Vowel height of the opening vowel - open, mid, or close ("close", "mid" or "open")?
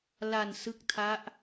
open